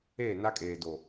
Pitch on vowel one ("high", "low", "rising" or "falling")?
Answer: falling